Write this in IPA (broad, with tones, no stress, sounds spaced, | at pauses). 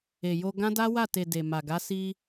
e˨ j o˧ ɡ ã˦ d a˦ w a˦˨ t e˨ d e˨ m a˨ ɡ a˨˦ s i˧